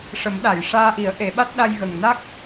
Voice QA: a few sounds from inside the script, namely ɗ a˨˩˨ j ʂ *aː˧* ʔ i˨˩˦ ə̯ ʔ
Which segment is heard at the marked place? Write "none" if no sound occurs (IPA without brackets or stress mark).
aː˧